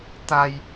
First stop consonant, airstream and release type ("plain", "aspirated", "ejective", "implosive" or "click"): plain